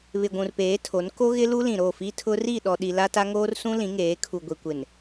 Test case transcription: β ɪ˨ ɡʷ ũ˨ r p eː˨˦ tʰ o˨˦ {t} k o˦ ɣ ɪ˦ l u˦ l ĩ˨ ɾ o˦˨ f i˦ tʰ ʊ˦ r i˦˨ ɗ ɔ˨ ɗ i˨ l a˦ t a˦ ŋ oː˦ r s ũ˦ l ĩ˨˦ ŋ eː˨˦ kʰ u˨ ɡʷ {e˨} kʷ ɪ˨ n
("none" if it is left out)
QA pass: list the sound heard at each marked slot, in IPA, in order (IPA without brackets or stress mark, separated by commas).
n, i˨